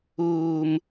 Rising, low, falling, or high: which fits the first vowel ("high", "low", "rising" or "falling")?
high